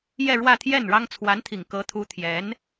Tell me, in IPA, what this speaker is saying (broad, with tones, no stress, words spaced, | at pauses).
jɛ˥˧ɻwä˥˧t̪ʰjɛ˥˩nɻɑ˥ŋ t͡sʰwa˧˥nt̪ʰi˨˩ŋ kɤ˧˥t̪ʰu˧˥ t̪ʰjɛ˧˥n